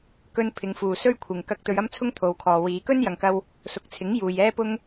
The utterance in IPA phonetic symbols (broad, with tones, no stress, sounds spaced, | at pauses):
k ɵ˧ n pʰ ɪ˨˧ ŋ f uː˨ s ɵ˥ ɥ kʷʰ ɪ˨ ŋ k ɐ˧ k̚ t̪ ɵ˨˧ ɥ ɐ˥ m t͡sʰ ʊ˥ ŋ t̪ʰ o˨ w kʰ ɔː˨ w iː˨˧ k ɵ˥ n j ɐ˨ ŋ k ɐ˧ w | s ʊ˨˥ k̚ t͡sʰ ɪ˨˥ ŋ j uː˨ j ɛː˥ p ʊ˥ ŋ